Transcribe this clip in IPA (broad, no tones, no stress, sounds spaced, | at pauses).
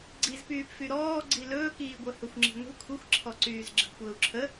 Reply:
ɡ͡ǀ i z p yː p f y ɾ ɔː ɡ͡ǀ i l ɵː k iː ɡʷ ɜ h ɵ xʷ ŋ͡ǁ i̤ ŋʷ i̤ kʷʰ i xʷ ǁʰ ɔ ǀ yː z ɡ͡ǁ ə̤ ɡ kʷ əː u̯ ǁʰ ə